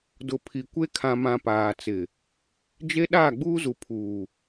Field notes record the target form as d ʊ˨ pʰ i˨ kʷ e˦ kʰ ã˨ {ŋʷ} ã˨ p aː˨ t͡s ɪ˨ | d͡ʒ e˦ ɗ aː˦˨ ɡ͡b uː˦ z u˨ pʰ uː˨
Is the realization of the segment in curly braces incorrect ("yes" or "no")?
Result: yes